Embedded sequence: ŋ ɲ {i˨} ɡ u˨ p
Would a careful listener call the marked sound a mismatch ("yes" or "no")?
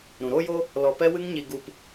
no